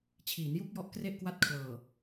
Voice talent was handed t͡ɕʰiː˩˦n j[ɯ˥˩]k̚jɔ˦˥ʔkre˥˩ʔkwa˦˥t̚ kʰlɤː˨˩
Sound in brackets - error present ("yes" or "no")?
yes